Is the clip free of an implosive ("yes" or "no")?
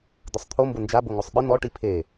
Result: no